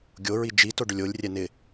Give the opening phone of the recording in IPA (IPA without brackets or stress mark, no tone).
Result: ɡʲ